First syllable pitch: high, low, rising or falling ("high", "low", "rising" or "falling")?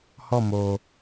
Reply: falling